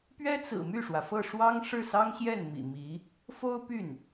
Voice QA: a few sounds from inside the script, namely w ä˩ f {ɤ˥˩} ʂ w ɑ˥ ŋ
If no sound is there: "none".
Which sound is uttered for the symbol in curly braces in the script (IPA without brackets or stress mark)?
ɤ˥˩